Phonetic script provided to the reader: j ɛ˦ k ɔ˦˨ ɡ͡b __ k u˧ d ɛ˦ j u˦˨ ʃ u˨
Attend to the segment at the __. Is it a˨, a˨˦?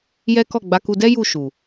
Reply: a˨˦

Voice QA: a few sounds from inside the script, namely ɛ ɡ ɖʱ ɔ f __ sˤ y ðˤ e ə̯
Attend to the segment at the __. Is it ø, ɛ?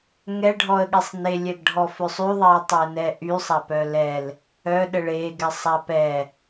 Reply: ø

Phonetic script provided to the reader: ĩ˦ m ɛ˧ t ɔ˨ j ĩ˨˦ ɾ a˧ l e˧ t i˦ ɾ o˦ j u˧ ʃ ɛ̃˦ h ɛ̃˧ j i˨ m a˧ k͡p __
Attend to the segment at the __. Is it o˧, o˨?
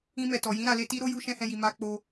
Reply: o˧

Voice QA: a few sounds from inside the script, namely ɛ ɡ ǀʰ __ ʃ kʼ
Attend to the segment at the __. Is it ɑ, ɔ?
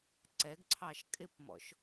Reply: ɑ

